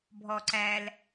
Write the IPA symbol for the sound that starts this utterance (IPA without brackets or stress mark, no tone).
bʱ